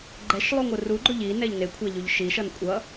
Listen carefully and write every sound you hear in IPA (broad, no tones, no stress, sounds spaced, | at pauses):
ɡ͡ǃ ɛ ʃ lˠ u ŋʷ ɯ r u ɡ͡ǃ o ʎ i n ɛ ʎ n e kʷʰ a ʎ u ʎ ʃ i ʃ ʌ n kʷʼ ʌ